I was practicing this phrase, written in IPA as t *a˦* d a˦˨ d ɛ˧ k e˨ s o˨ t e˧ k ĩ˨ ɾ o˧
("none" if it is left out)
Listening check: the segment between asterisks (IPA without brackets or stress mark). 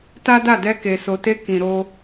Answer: a˦